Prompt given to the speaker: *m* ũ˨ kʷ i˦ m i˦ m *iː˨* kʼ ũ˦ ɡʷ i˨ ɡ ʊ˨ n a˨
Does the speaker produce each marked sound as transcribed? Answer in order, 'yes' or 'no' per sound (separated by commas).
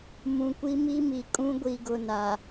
yes, no